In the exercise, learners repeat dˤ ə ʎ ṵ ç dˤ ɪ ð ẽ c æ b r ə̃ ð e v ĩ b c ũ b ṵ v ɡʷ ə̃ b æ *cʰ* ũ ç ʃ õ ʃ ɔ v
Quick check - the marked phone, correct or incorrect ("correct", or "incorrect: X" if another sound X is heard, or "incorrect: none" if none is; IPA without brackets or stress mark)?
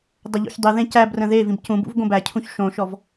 correct